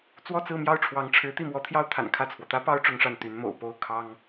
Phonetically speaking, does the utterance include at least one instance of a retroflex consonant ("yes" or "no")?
yes